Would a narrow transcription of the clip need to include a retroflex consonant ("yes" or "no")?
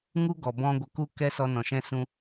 no